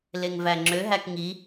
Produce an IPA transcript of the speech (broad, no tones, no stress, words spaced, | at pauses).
leŋvæŋ͡ǁø ɦækŋi